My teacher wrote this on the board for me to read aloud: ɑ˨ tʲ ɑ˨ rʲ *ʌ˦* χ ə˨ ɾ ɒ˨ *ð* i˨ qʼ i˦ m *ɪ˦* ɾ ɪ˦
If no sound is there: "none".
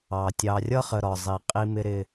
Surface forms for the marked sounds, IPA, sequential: ʌ˦, zˤ, ɪ˦

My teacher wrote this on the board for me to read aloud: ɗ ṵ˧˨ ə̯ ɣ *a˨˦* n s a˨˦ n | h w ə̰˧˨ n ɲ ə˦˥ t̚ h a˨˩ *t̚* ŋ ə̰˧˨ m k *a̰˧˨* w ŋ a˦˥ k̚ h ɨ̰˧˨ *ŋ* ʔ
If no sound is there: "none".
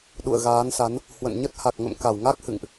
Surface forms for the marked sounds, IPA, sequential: aː˨˦, k̚, a˧˩, ŋ

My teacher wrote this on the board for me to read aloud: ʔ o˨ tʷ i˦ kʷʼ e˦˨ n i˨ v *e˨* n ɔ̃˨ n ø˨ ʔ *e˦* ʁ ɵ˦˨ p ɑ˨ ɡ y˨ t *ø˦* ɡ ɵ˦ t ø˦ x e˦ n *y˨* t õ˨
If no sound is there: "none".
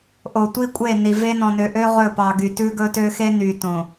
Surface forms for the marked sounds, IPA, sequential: e˦, ø˦, ʉ˦, y˨

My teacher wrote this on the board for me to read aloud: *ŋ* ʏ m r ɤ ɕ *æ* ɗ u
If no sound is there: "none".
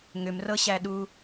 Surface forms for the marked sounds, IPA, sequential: ŋ, æ

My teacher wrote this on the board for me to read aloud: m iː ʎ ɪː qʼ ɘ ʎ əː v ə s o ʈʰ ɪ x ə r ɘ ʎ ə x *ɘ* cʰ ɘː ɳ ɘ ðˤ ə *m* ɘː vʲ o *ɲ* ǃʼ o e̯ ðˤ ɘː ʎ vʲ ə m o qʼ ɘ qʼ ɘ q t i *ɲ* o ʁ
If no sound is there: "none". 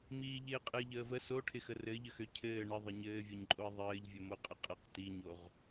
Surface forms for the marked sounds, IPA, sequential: ø, ɲ, ɲ, ɲ

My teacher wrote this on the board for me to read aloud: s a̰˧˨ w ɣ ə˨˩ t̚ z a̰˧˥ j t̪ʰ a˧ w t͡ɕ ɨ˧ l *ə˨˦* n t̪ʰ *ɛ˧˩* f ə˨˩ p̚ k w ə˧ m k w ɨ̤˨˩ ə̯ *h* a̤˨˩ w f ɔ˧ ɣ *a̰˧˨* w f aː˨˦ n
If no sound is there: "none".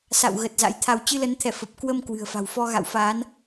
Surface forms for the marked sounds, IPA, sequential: ə˨˦, ɛ˧˩, f, a̰˧˨

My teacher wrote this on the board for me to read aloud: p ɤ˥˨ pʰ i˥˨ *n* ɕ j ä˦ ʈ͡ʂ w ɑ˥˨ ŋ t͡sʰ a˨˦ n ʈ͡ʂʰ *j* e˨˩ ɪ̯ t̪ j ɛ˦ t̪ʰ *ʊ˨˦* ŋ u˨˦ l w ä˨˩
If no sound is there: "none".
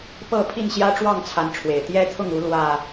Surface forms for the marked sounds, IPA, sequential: n, w, ʊ˥˨

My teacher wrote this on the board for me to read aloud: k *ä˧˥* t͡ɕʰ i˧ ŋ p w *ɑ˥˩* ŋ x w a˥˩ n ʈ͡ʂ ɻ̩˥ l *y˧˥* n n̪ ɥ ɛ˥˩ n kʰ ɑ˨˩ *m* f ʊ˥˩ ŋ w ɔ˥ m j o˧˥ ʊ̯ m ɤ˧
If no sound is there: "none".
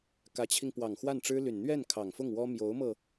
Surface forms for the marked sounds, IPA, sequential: ä˧˥, ɑ˨˩, y˨˩, ŋ

